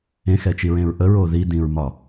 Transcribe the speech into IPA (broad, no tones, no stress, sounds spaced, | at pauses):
ẽ x ɛ t͡ʃ i ɹ ẽ ɹ ʔ ə ɹ o ð i d ĩ ɹ m ɒ